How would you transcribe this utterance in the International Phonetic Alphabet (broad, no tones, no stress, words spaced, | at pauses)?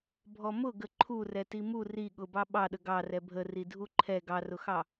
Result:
bʱɔmʊ ɡəǃʰu rɛtimu ri ɠʊbɑ ɓɑɗə ɡɑ rɛbʱə ridʱuǃʰɛ ɡɑrʊxɑ